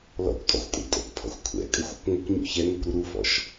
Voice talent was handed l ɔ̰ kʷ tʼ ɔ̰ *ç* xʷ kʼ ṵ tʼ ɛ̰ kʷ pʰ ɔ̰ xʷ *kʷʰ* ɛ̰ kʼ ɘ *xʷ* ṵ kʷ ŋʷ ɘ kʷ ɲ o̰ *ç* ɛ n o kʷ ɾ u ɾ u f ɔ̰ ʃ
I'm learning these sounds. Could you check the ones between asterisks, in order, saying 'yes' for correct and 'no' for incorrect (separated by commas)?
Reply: no, yes, yes, yes